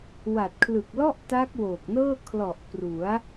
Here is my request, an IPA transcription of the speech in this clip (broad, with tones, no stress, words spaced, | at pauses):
wa˨˩t̚kʰlɯ˨˩k̚lɔ˥˩ʔ ta˦˥k̚woː˨˩k̚nɤː˥˩ kʰlɔ˨˩ʔ pru˩˦a̯